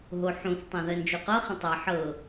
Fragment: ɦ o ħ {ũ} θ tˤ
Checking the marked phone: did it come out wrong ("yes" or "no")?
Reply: no